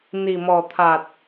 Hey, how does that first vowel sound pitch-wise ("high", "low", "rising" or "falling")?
low